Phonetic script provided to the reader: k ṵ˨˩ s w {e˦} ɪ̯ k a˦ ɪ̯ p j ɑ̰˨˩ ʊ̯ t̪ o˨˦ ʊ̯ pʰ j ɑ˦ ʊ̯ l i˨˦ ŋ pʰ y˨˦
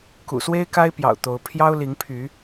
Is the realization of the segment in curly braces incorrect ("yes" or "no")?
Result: no